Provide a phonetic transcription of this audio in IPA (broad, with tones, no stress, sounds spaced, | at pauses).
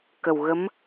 k ə˨˩ w ɣ ə˧˥ m